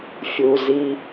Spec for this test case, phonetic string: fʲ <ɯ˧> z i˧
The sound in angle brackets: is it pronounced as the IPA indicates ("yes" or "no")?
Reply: no